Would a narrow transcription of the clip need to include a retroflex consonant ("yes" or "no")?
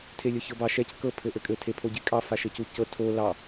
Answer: no